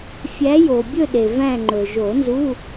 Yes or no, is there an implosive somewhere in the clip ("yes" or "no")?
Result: yes